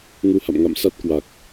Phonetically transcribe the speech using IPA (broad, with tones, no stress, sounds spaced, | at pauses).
ŋ u˧ h a̰˧˨ m ŋ a̰˧˨ m s a˦˥ t̚ k w a˨˩ k̚